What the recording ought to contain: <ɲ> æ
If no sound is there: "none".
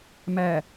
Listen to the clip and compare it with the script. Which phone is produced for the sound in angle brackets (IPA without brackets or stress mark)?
m